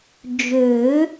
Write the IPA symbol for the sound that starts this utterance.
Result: d͡ʒ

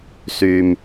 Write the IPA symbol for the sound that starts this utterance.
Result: s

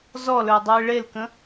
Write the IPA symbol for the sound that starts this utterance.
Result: z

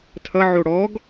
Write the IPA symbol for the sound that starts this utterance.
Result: tʰ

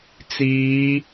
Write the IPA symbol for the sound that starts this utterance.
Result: t͡s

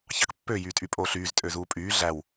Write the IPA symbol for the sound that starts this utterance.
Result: ç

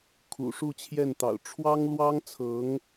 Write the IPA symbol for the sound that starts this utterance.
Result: kʰ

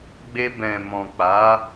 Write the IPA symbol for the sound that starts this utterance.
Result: ɡ͡b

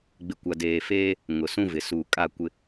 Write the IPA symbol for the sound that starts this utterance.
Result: ɡ͡b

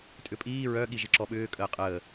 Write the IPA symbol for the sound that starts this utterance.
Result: tʼ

